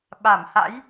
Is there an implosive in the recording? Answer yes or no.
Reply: yes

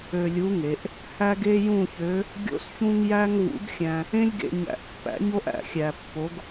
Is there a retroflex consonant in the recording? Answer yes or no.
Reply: no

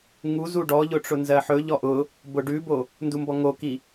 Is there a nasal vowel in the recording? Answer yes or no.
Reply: no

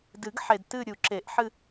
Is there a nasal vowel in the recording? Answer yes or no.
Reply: no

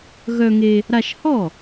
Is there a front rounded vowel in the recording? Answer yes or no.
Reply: yes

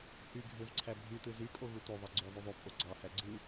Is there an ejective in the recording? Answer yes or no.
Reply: yes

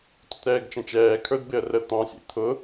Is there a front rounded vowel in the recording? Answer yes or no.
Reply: no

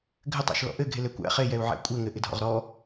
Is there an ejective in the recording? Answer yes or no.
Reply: yes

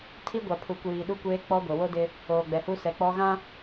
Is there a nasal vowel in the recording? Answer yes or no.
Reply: yes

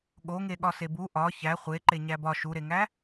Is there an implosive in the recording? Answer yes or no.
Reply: yes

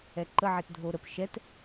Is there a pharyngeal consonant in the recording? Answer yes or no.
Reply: yes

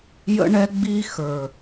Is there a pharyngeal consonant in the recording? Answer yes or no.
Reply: no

